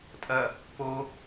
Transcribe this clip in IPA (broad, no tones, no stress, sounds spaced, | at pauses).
tʼ ɐ | p o